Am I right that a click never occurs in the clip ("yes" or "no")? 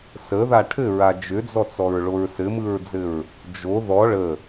yes